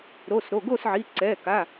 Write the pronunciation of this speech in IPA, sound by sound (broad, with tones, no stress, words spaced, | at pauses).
ɾo˩˧˩sɾo˩˧˩ɡo˦˨sʕi˩˧˩ ǀɛ˩˧˩ka˩˧˩